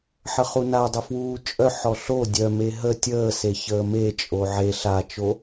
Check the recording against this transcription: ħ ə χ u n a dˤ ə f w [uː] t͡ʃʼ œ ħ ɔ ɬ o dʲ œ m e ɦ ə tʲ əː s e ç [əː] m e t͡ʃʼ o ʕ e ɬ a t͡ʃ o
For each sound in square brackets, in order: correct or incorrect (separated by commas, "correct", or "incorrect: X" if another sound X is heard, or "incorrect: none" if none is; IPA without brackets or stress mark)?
correct, correct